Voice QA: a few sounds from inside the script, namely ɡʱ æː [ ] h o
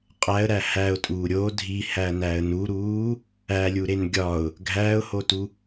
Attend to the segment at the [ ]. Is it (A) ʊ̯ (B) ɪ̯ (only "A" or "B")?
A